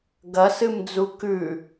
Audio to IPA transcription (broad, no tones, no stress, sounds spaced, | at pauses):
ɡ ɐ s ɨ m d͡z u k ʉ